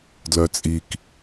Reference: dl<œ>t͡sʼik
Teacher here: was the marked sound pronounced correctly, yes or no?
yes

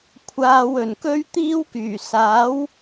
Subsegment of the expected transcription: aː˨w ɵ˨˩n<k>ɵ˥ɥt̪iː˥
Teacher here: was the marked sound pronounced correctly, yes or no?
yes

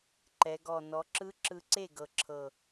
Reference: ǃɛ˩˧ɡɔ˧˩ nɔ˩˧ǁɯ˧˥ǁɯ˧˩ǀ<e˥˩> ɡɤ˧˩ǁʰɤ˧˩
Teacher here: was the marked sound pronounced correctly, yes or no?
yes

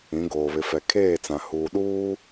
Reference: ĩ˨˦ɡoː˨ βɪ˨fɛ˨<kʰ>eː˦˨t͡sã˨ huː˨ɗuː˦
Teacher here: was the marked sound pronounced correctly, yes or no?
yes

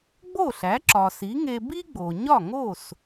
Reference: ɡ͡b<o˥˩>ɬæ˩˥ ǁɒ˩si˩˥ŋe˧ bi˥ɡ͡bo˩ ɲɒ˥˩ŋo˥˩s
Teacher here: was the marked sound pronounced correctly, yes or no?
yes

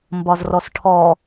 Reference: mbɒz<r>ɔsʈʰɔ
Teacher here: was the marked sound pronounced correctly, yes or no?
yes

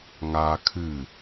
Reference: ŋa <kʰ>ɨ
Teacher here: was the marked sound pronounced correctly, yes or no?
yes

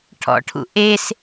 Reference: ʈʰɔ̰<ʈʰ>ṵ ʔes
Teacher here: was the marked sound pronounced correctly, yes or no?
yes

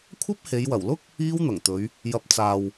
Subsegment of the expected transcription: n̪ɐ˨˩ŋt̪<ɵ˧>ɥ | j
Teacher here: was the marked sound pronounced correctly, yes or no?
no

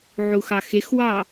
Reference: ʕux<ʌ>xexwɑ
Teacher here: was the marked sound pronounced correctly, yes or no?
no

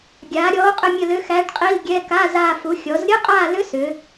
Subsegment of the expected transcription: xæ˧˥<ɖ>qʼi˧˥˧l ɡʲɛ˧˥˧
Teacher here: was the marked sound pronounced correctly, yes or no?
yes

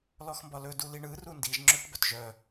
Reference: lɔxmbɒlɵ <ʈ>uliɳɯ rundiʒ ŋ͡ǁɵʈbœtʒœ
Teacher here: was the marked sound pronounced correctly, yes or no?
no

